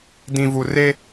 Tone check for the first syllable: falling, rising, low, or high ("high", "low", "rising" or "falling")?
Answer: low